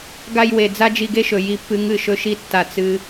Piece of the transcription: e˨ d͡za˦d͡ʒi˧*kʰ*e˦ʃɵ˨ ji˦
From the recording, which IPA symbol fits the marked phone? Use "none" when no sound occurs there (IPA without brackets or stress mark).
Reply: ɡ